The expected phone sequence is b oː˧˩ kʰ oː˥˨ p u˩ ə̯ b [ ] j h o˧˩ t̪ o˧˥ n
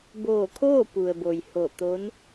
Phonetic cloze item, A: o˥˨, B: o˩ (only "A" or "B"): B